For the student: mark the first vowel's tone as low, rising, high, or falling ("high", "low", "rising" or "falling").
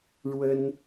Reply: high